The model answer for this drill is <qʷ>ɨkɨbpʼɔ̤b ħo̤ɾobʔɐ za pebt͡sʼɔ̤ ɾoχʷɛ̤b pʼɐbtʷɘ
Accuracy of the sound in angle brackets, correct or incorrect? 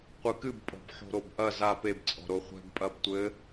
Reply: correct